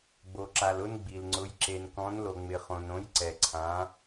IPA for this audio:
ɡ͡b o˨ ǁ a˨ l ʊ˦ n ɡ͡b i˨ l ŋ͡ǀ ʊ˨˦ j ǁ e˨ n k ɔ̃˨˦ n l o˨ ŋ͡m ɪ˨ χ õ˨ n õ˨˦ j ǀ ɛ˨ ǀʰ ã˨˦

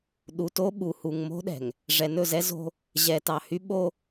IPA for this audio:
ɗ u˨ t o˦ ɓ u˨ h u˨ ŋ m o̤˦ ɗ ɛ̤˨ ŋ | ʐ ɛ˨ n ɵ˦˨ z ɛ˦ z o̤˦ | ʑ ɛ˨ t ɑ˨ h y˦ ɓ o˦

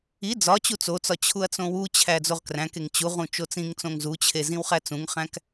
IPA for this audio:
i d͡z ɒ t͡ɕ u t͡s o t͡s ɒ t͡ɕʰ u ɐ̯ t͡s õ w u t͡ɕʰ æ d͡z o ʁ k r æ̃ k e ŋ t͡ɕ u ʁ ũ t͡ʃ o t͡s ĩ ŋ t͡s õ ŋ z u t͡ɕʰ e z ĩ w χ æ t͡s ũ ŋ χ æ̃ k

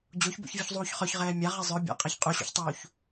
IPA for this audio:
d͡ʑ o ç b o̰ ç vʲ u ç zˤ uː ç χ œ ç ʁ ɛː mʲ a ʁ ɛ zˤ œ bʲ a̰ qʼ a ç qʼ u ɕ ṵ ç tˤ uː ç

